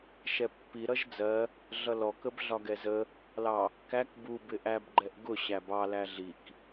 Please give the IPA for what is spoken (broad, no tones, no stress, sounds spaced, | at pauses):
ʃ ɛ pː i ɾ ʌ ʒ d͡z ɜ | ɮ ʌ l ɔ k ə b ɮ ɒ ɡ ɛ z ə | l ɑ | k æ k b u b ɪ ʔ æ b ɡ͡ǃ ɛ ʔ ɡ ʊ ɕ æ b ɑ l æ ɮ i k